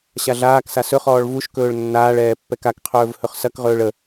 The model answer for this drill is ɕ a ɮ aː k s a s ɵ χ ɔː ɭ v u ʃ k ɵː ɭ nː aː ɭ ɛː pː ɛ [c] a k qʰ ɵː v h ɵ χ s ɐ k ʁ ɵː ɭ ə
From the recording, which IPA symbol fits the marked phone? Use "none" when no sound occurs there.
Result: k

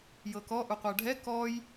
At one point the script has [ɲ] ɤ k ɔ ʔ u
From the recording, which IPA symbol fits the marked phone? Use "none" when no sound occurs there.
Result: j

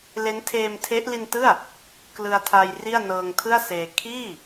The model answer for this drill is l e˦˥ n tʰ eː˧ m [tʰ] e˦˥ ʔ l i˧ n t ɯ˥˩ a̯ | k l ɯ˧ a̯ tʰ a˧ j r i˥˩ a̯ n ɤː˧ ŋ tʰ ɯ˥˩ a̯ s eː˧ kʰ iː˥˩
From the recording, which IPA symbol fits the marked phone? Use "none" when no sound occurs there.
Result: tʰ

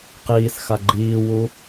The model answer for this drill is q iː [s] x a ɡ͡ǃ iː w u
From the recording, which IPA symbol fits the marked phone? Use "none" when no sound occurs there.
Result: s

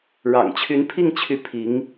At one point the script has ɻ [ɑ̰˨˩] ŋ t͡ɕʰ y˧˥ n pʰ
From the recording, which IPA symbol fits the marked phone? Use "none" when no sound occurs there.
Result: ɑ̰˨˩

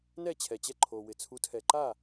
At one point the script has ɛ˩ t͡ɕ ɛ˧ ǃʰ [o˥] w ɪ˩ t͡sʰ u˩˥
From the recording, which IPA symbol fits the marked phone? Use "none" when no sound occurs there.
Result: o˩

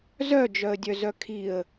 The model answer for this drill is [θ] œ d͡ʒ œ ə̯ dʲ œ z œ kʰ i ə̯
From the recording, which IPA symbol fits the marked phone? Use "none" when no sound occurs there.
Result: z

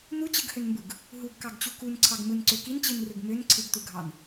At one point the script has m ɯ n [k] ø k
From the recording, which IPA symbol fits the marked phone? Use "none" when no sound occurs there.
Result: ǀ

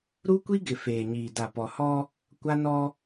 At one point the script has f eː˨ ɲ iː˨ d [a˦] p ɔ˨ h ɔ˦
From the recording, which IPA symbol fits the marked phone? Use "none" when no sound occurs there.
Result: a˨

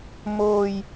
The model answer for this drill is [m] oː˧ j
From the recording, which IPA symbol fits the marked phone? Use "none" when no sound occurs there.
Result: m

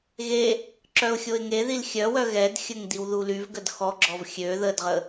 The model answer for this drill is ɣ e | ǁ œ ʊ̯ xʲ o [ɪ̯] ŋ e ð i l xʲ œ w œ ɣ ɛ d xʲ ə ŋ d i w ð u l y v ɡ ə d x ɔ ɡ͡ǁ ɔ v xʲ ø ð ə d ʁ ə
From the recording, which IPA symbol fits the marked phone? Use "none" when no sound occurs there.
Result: ɪ̯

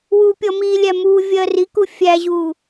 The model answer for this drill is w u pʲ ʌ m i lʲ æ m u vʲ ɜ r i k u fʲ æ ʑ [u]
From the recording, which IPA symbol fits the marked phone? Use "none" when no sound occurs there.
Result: u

